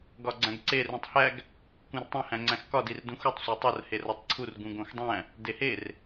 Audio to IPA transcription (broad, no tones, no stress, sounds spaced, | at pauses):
ɡ ɒ ɡ͡ǀ æ̃ ɡ ǀ e r ũ tˤ h æ ɡ | k ũ r tˤ õ h æ̃ ŋ͡ǀ æ̃ x k ɒ d i r d ũ x u tˤ sʷ æ tˤ o r h e r ɒ tˤ ǀʰ u r ɡ ũ ɡ õ x dˤ æ̃ | d e h e r